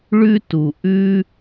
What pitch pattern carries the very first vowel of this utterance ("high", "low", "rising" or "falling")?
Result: high